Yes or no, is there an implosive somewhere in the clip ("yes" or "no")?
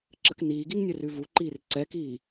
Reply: no